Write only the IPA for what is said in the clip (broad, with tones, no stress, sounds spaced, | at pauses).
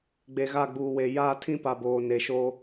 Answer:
ɡ͡b e˨ ɣ a˦˨ ɡ͡b uː˨ w e˨ j aː˦ tʰ ĩ˦ p a˨ b oː˨ n e˨ ʃ oː˦